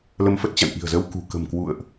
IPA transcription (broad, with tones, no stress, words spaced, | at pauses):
lə˧mfə˦˥t̚t͡ɕa̰˧˨n ʔi̤˨˩ə̯zə˧wkṳ˨˩ kə̤˨˩mkwṵ˧˨ə̯ʔ